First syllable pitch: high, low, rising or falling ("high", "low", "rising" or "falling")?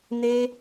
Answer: high